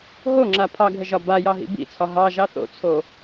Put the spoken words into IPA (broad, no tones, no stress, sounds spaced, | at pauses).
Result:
ɦ o ŋ͡ǁ a pʰ ɑ ɡʱ ə ʒ ɒ b a j ɑ ɦ ḭ b ḭ t͡sʰ ɒ ɦ ɑ ʒ ɑ θ o̰ t͡sʰ o